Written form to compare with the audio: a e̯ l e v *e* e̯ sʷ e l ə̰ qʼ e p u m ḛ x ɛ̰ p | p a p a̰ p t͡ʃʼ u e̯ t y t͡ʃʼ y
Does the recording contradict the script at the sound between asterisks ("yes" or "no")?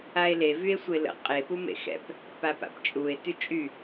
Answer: yes